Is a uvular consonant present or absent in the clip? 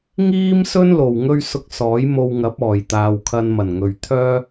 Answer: absent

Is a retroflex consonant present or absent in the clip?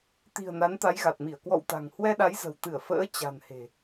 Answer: absent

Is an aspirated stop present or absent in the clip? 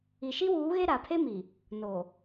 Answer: present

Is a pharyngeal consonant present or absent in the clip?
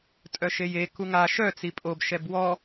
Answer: absent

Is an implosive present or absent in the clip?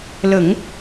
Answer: absent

